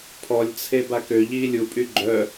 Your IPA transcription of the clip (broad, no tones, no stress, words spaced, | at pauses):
pʰɔlʲt͡sʰe bakø ʎiːlʲupʼy ɡ͡ǃœ